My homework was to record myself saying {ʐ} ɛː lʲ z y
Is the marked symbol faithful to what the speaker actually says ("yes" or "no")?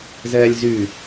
no